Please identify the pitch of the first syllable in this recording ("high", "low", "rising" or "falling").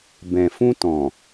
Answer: low